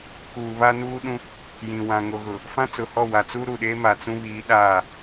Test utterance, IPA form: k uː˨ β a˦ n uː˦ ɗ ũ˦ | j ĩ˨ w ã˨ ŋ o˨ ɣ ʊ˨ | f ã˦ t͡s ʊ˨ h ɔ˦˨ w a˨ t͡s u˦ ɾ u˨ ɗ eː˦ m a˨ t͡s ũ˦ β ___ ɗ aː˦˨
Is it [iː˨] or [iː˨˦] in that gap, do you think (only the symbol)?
iː˨˦